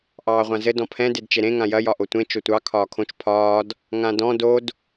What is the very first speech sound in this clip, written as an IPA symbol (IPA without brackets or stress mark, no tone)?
ʔ